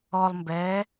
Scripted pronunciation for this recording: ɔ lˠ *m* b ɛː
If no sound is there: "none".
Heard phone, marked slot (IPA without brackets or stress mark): m